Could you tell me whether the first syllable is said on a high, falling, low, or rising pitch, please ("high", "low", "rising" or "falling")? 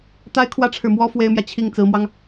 high